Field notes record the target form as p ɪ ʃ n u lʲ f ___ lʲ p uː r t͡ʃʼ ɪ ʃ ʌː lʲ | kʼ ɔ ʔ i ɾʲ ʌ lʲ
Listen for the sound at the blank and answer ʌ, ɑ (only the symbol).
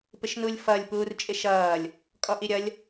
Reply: ʌ